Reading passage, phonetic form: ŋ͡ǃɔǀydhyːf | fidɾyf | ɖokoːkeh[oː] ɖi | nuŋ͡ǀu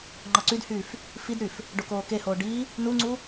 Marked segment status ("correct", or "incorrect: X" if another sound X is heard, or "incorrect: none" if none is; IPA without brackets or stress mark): correct